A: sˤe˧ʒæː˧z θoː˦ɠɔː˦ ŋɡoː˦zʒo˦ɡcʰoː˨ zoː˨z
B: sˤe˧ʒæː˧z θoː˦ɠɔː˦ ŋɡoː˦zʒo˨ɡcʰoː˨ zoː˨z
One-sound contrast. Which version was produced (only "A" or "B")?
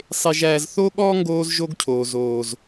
A